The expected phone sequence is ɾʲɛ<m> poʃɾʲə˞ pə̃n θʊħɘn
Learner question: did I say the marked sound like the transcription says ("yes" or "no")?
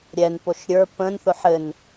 no